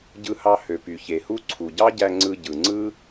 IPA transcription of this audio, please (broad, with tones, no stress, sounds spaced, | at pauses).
ɟ ɯ˧ h ɑ˧ h ø˩ p y˩ ç e˩ h u˥ ǀʰ u˩ ɟ ɑ˥ ɟ æ˧ ŋ͡ǀ ɯ˧ ɟ ɯ˩ ŋ͡ǀ ɯ˥